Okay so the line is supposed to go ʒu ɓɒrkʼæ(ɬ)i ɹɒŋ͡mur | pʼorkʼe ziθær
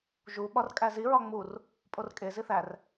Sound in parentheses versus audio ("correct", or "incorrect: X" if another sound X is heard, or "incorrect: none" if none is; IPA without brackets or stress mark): incorrect: z